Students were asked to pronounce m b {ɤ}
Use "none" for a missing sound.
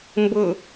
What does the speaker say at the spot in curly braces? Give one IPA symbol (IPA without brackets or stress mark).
ɤ